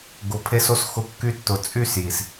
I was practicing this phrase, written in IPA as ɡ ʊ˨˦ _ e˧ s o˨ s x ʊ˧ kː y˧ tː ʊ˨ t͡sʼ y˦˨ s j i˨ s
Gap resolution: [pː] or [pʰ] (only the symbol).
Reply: pʰ